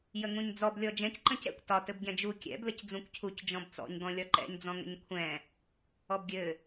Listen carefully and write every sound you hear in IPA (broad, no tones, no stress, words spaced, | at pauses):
jəŋũɲd͡zɔb lʲɔd͡ʒɛ̃c ǃə̃cɛ̰kʷ tɒ tɘbɟɛ̃d͡ʒu kʲɛ̰b ləcd͡zũkʷcʰuc d͡ʒɔ̃bt͡sɔ̰ɲ ɡɔ̃lʲɒǃɛ̰ɲ d͡zɔ̃ŋə̰ɲkʷʰɛ̃ | ɔbɡʲɘ